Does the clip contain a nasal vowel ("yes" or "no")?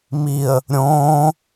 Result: yes